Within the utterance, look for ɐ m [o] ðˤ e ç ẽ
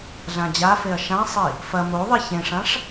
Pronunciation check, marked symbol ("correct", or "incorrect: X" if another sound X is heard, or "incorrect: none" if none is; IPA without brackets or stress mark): correct